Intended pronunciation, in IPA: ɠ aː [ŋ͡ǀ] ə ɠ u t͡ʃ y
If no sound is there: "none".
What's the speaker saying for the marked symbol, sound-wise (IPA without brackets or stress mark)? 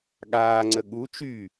ŋ͡ǀ